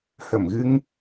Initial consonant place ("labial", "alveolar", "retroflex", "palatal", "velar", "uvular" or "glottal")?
glottal